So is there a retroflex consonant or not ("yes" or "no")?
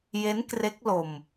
no